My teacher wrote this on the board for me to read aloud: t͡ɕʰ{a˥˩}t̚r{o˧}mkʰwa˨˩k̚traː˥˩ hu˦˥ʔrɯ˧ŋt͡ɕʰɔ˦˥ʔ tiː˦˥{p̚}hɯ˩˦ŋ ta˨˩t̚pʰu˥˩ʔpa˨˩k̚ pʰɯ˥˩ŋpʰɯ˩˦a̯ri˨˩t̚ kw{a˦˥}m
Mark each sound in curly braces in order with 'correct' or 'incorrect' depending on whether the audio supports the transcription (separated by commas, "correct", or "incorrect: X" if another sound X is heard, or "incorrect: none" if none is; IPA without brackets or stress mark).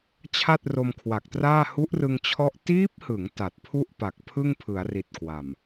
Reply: correct, correct, correct, incorrect: a˨˩